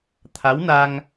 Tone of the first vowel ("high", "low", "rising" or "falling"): rising